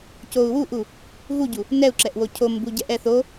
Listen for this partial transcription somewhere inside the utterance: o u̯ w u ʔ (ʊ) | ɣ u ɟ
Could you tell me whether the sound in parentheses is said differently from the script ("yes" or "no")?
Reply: yes